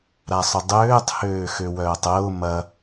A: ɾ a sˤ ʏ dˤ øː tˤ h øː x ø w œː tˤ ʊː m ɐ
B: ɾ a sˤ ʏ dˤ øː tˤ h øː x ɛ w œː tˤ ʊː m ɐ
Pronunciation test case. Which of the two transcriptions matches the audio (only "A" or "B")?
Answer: A